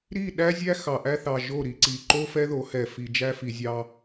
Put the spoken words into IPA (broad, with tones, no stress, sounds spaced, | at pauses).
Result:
ɾ i˦˨ ɗ æ˦ zʲ æ˦ x ɑ˨ ʔ æ˦ θ ɑ˨ ʒ o˦˨ ɾ i˨ ǀ i˨ ǃ o˦ f ɛ˦ ð o˨˦ h ɛ˨ f i˨ d͡ʒ æ˦ f i˨ zʲ ɑ˦